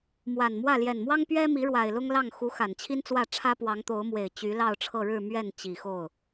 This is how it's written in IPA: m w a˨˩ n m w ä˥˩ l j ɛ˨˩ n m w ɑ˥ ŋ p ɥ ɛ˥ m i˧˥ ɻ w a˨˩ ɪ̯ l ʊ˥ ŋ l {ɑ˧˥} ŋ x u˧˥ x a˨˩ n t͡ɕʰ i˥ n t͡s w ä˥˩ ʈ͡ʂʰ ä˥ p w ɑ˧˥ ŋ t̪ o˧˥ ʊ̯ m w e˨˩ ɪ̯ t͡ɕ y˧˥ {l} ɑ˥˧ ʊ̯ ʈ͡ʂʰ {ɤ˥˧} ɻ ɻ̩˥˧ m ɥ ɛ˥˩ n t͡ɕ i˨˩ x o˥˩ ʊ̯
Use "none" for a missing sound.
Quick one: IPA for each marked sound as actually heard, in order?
ɑ˥˩, l, ɤ˥˧

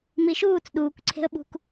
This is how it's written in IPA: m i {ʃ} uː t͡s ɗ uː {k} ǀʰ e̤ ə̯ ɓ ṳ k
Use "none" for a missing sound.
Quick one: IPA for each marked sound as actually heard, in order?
ʃ, k

